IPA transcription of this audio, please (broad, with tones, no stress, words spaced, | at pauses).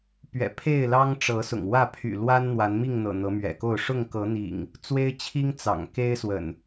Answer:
pɥɛ̰˨˩pʰe˥˨ɪ̯lɑ˦ŋ ʈ͡ʂɤ˨˦ sʊ̰˨˩ŋ wä˥˨ pʰy̰˨˩ lwa˦n n̪wa˨˦nmi˥˨ŋn̪ɤ̰˨˩ n̪ɤ˨˦mɥɛ̰˨˩ko˥˨ʊ̯ ʂʊ˥˨ŋkɤ˨˦n̪ḭ˨˩ŋ | t͡swe˦ɪ̯t͡ɕʰi˦ŋ t͡sɑ̰˨˩ŋ ke˦ɪ̯swə̰˨˩n